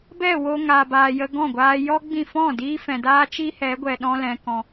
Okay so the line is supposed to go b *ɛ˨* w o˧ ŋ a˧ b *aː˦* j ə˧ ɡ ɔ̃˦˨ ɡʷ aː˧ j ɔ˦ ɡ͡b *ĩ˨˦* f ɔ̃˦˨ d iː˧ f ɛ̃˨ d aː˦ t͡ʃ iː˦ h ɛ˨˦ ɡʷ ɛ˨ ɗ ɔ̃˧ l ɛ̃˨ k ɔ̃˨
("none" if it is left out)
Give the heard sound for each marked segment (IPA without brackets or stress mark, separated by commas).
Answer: ɛ˦˨, aː˧, ĩ˦˨